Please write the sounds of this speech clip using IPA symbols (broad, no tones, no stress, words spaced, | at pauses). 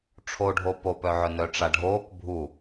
ʈ͡ʂʰoɖʱo popœʕœ nœʈ͡ʂaɖʱoːk bʱu